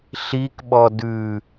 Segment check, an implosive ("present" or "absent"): present